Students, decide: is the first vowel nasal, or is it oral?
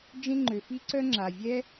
nasal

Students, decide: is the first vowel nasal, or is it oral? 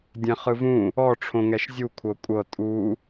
nasal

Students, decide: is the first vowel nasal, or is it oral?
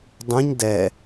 nasal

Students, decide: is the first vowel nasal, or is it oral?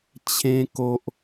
nasal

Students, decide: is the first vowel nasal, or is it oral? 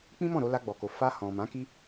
nasal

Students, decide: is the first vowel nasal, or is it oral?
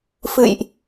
oral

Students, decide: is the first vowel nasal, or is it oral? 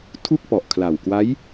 oral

